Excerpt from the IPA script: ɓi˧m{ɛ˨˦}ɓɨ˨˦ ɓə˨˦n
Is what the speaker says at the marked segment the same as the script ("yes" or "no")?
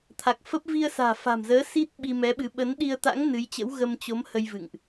yes